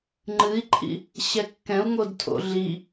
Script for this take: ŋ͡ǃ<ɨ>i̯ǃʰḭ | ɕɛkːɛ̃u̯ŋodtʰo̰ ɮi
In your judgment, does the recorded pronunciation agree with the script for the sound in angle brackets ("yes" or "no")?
yes